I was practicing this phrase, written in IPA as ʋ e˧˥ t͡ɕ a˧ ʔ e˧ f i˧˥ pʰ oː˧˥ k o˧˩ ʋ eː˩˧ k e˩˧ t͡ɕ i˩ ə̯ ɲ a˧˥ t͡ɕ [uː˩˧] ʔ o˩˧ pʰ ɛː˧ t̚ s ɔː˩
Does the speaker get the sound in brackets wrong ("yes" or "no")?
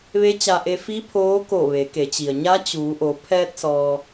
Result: no